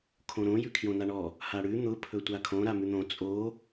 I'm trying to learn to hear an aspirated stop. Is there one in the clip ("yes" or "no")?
yes